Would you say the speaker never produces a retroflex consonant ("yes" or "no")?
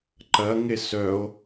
yes